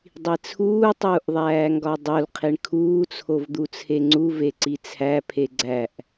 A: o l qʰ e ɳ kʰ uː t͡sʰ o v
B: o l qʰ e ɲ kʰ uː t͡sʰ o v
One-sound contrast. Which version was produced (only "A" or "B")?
A